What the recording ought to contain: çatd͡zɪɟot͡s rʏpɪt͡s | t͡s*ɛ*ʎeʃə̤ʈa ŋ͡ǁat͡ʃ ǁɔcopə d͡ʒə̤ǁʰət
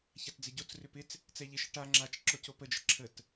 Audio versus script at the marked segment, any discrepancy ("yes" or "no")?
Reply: no